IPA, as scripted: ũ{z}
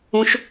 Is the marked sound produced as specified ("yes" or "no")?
no